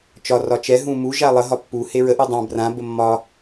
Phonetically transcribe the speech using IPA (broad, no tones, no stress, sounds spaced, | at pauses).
t͡ʃ ɒ r ɒ t͡ʃ ɛ ɦ ũ m u ʒ a lˠ ə ɦ ɒ pː u h e ɹ ə ʔ u dˤ ã b r ã b ə mː ɒ